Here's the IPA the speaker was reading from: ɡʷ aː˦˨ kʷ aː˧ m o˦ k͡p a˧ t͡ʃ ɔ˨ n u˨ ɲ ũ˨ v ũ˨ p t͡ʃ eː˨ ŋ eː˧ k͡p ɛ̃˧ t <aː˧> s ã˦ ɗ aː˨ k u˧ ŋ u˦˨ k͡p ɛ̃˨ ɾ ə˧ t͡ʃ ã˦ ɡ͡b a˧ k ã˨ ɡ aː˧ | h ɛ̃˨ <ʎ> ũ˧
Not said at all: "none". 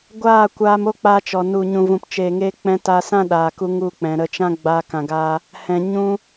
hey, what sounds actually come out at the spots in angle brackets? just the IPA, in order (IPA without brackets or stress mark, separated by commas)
aː˧, ɲ